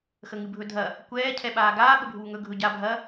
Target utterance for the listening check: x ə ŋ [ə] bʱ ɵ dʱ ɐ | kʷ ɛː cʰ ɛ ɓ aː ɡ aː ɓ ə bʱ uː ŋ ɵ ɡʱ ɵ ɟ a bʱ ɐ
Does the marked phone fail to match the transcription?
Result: yes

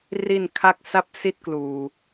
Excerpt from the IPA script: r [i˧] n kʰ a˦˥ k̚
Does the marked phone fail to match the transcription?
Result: no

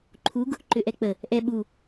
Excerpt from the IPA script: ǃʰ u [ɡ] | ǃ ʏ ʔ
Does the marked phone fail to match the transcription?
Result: no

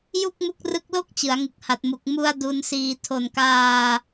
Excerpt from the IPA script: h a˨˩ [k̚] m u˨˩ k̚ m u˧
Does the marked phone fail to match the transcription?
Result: yes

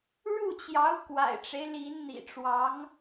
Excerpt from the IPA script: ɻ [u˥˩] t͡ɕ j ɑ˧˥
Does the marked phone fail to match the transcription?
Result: no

